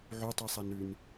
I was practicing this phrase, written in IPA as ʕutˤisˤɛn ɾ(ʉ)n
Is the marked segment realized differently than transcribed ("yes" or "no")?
no